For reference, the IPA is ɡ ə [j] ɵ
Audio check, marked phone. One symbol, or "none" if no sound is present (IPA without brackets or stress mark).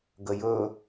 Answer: j